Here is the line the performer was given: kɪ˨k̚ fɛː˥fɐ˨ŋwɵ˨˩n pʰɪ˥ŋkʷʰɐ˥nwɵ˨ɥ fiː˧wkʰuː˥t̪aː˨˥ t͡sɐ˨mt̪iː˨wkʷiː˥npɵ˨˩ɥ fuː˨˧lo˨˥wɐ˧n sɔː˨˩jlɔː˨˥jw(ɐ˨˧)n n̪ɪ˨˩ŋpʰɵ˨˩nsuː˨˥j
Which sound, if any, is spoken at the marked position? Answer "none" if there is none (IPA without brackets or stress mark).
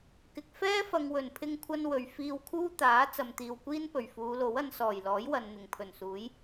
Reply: ɐ˨